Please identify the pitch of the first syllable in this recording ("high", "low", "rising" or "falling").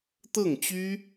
falling